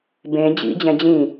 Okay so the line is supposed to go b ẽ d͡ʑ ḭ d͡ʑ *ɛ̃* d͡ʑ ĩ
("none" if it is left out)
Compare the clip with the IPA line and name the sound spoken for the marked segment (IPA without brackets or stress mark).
ɛ̃